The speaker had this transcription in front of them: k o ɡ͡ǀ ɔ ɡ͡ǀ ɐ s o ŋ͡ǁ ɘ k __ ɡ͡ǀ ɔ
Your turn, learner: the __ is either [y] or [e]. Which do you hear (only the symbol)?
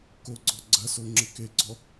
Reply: e